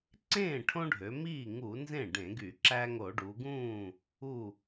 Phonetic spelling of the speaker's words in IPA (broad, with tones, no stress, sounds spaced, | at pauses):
ǀ ẽː˥˩ ʈʰ õ˦ ɖʱ ø˩˧ m iː˥˩ ŋ u˧˩˧ n z ẽ˥˩ ɖ ẽ˧˩˧ ɡ y˧˩˧ ǁ æ˦ ŋ o˧˩˧ ɖ u˩˧ ɡ ũː˥˩ | u˧˩